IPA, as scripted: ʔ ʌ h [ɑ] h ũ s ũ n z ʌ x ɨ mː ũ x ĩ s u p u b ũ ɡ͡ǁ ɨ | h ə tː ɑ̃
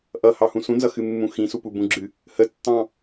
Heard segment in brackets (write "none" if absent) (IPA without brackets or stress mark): ɑ